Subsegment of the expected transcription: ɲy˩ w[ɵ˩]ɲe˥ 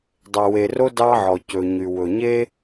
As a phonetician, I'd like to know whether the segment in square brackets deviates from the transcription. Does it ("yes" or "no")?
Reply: no